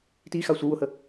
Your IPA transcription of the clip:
t i x a sʷ ə w ʊ h ə

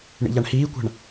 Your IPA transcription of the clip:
ɳ ḭ ʎ a ɳ h iː kʷ a̤ ɳ

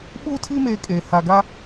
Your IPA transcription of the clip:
ɓ uː˦ tʰ i˦ m eː˦ kʼ eː˨ h a˨ ɡ a˦

